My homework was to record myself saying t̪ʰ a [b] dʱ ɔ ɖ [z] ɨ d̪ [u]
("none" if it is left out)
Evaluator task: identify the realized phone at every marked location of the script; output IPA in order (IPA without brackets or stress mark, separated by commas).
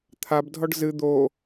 b, z, o